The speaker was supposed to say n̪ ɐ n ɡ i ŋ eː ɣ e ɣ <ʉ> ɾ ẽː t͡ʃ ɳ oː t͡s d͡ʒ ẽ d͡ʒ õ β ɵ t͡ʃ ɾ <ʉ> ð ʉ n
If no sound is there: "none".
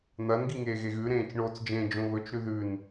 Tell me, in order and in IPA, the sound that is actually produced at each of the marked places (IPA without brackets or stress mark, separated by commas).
ʉ, ʉ